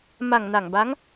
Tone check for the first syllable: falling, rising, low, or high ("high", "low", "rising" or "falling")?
low